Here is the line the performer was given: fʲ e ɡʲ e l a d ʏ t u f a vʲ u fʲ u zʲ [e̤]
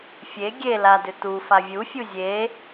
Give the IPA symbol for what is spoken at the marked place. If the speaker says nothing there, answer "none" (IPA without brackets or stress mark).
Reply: e